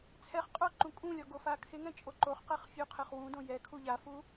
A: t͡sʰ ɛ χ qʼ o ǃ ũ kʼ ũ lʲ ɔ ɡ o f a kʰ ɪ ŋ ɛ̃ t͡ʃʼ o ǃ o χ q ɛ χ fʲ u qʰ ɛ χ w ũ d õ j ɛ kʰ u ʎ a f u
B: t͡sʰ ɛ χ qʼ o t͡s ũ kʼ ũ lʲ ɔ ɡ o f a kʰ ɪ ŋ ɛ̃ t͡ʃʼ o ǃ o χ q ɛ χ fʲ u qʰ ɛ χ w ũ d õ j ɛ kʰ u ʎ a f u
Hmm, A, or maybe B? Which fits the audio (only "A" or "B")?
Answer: A